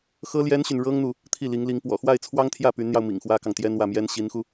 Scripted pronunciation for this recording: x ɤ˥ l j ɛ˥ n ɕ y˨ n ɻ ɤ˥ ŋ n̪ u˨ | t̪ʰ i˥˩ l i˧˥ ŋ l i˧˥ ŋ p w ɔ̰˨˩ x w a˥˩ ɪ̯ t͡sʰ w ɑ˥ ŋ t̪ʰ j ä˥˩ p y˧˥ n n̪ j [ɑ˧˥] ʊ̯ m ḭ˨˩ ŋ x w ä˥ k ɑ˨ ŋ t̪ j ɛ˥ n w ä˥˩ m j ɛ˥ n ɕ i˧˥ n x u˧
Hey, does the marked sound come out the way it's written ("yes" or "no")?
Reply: no